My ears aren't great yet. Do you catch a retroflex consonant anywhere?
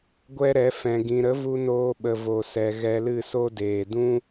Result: no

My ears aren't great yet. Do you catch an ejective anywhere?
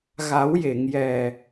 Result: no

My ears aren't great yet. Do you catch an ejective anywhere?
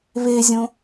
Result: no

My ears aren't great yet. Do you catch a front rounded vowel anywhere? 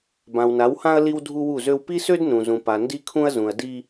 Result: yes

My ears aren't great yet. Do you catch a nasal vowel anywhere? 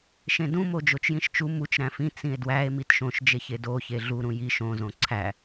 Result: yes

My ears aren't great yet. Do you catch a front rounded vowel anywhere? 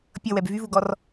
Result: yes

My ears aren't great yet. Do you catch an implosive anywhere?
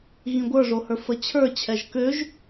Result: no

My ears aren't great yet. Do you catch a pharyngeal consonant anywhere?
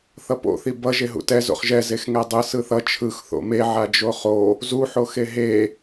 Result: yes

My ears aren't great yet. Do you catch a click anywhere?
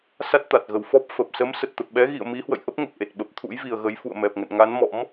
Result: no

